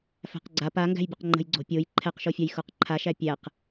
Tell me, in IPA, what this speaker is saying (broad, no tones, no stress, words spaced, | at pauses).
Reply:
fæ̤qɡ͡ǀa paŋɡæ̤jbʲəq ŋ͡ǃə̤jɡ͡ǀo̤pʲoj ǃʰɛqʃofʲaj xoqǃʰaʃæ pʲæq